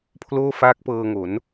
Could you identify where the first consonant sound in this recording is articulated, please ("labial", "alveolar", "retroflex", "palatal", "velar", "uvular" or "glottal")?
labial